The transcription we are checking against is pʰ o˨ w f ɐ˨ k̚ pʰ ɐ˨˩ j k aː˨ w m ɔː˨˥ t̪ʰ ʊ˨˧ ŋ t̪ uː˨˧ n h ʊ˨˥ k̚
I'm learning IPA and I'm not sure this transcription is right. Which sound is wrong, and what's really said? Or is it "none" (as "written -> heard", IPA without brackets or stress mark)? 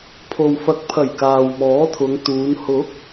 none